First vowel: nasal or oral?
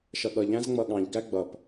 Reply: oral